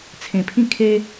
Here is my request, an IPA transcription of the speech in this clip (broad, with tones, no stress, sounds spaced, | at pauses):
t͡sʰ ẽ˨˩ pʰ ĩ˥˧ kʰ e˦